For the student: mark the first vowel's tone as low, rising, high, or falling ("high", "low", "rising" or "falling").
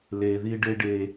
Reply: low